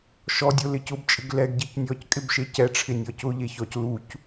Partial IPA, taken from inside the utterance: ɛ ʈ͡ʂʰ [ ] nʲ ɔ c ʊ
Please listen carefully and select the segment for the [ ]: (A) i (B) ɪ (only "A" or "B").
B